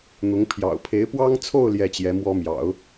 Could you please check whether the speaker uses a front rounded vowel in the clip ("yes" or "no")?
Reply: no